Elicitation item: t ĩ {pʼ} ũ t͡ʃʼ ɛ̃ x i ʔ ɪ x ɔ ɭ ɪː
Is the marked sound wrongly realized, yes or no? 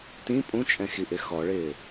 no